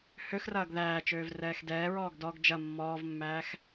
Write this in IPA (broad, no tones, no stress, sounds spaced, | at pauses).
h ø x r ɐː ɡ ð æː t͡ʃ øː v r ɛː x d ɛː ɹ ɔː ɡ d ɔ ɡ d͡ʒ ɐ mː ɔː v mː æː x